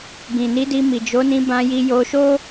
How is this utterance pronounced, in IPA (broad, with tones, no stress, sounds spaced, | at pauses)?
ɡ ĩ˨ n i˨˦ d i˧ m i˨ d͡ʒ o˨˦ n ĩ˧ b ã˧ j i˧ j o˧ ʃ o˦